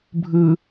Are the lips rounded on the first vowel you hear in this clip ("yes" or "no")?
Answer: no